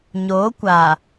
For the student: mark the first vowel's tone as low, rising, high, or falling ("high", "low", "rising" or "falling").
rising